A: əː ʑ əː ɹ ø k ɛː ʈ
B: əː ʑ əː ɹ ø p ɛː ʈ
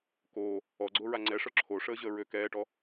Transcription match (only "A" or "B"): A